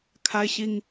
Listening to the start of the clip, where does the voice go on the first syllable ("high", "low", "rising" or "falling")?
high